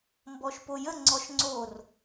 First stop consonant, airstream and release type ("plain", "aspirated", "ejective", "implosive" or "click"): plain